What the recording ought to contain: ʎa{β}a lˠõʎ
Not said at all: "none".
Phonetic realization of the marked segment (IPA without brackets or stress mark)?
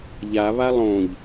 β